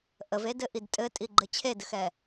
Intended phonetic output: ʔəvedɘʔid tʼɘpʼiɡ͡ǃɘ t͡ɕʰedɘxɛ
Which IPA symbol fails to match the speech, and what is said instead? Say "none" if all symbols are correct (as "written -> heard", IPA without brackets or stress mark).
pʼ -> tʼ